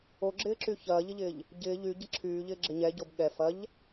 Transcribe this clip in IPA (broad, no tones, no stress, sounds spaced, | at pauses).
o ɡ͡ǁ ɪː ǁ y ç ɐː ʎ ɪ ʎ ɪː ʎ | ɟ ɪː ʎ y ɟ ɐ ǁʰ yː ʎ ɪː ɡ͡ǁ ɪ ɲ ɛ ɟ o b ɠ ɛ f ɐ ʎ